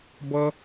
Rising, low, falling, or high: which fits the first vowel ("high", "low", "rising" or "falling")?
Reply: high